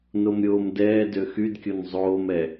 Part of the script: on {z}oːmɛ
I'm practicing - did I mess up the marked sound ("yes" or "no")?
yes